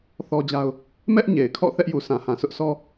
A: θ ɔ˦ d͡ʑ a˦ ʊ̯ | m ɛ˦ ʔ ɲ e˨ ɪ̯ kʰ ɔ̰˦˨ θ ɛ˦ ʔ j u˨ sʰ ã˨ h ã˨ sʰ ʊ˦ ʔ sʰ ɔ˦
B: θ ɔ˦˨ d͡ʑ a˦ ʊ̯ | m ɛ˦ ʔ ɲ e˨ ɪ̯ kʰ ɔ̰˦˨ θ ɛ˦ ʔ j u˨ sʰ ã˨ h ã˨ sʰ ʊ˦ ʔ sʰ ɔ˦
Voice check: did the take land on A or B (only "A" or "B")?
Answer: A